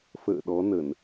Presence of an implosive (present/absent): present